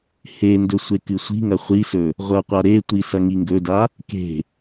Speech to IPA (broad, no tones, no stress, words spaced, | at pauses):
hendɵ sʷekɨsʷi̤ŋɐ χʷisɵ | ʁʷɐqʷa ɾetʷi sɐŋiŋɡɵda | ke̤